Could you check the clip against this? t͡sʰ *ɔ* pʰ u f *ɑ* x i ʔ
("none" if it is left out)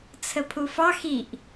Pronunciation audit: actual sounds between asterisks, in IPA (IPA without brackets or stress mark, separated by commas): ə, ɑ